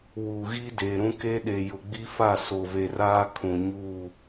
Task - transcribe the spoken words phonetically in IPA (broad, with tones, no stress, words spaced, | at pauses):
wuː˨ɣiː˦deː˨ɾũ˦ ke˦ɗe˨ jʊ˨ɡ͡bi˦fa˦˨ so˨ve˨raː˦ kʰũ˨ɲuː˦˨